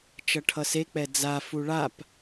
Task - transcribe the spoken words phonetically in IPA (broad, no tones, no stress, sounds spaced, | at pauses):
t͡ʃ ʌ ʈʰ ʌ s e k͡p ɛ d͡z a f u ɭ a p